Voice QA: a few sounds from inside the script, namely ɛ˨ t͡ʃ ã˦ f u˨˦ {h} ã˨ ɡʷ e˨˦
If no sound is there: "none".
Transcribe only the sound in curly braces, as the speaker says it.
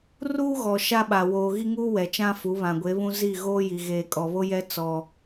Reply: β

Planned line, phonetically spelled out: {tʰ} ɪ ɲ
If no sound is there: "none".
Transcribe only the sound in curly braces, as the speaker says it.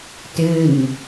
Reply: t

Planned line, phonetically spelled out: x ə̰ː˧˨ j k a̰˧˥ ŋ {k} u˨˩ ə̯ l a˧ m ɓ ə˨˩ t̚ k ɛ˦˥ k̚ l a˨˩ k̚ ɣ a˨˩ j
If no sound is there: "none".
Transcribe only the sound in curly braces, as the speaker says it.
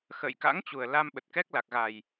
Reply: t͡ɕ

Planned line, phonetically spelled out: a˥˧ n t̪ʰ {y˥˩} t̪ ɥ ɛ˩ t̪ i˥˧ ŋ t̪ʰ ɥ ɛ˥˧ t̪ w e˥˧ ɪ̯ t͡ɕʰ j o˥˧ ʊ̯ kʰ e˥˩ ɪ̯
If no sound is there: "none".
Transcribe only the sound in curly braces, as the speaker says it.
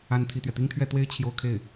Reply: i˥˩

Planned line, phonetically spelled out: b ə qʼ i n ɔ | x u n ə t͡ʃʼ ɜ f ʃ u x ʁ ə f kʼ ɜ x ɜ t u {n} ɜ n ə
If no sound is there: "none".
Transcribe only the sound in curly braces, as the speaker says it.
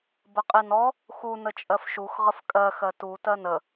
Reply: t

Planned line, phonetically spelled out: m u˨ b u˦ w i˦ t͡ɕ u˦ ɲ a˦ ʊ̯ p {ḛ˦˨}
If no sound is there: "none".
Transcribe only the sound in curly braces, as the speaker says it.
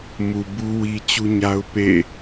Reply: ḛ˦˨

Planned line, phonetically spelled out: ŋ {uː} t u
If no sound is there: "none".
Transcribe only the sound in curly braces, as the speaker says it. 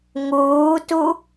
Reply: uː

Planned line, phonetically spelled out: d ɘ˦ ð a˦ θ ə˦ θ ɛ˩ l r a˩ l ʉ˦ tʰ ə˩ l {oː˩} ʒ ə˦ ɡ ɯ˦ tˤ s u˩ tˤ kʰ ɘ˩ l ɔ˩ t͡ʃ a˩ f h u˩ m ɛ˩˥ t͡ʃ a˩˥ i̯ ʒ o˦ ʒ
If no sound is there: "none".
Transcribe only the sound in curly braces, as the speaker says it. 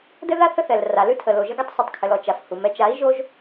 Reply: o˩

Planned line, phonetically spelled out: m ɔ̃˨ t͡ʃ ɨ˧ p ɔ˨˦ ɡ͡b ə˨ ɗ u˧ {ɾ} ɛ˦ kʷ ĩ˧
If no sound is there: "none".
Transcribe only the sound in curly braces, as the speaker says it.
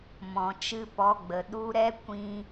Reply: ɾ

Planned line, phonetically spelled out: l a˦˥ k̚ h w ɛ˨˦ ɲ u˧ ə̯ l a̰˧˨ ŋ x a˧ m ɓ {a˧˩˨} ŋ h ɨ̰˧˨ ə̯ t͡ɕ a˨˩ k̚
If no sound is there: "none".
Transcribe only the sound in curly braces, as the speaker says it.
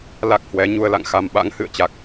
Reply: a̰˧˥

